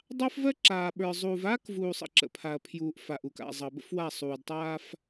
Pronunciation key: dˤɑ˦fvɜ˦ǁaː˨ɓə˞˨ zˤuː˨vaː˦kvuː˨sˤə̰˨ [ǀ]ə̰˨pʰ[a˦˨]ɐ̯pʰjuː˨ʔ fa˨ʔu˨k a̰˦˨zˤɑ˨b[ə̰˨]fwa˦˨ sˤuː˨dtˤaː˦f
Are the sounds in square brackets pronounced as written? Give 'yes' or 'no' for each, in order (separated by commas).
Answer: no, no, no